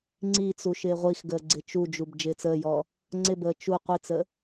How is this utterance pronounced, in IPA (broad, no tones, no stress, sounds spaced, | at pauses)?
ŋ͡ǀ i t͡s u ʃ ɪː ʁʷ i x ɡ əː ɡ͡ǀ ɪ t͡ʃ u d͡ʒ u b d͡ʒ ɪː t͡s əː j ɔ | ŋ͡ǀ ɪ b əː t͡ʃ u qʷ i t͡s ə